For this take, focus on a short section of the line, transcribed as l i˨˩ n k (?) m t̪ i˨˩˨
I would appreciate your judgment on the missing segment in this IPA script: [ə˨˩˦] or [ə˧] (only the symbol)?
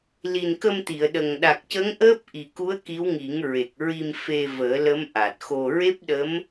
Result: ə˧